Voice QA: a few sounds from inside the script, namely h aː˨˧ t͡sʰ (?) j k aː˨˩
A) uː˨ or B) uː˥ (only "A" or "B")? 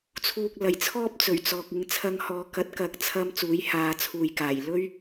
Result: A